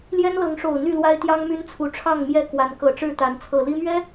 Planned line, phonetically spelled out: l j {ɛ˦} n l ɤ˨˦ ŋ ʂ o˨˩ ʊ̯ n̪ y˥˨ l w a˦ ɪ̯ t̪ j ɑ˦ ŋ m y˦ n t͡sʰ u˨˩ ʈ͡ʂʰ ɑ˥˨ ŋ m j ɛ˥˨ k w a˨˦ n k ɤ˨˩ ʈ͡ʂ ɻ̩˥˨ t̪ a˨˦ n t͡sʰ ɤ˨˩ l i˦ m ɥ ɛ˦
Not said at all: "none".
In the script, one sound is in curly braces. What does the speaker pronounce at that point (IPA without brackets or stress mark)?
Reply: ɛ˦